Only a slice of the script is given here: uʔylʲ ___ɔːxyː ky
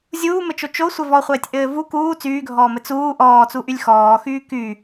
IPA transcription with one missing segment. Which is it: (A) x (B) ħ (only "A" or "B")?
A